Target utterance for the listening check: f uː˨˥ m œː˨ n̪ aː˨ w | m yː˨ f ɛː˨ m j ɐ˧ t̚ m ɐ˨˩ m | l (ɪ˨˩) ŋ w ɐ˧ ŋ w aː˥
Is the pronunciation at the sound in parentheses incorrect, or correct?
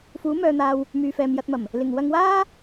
correct